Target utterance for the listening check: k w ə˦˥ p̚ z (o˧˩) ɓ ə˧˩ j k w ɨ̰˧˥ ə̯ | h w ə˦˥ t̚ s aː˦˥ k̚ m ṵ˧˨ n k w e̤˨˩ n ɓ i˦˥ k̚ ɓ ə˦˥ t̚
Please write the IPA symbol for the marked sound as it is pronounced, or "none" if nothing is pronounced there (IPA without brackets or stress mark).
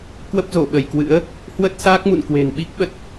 o˧˩